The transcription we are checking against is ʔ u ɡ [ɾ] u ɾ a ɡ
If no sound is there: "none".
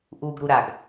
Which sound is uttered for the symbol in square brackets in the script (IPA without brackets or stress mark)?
ɾ